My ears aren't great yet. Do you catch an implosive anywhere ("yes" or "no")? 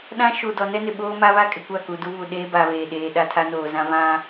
yes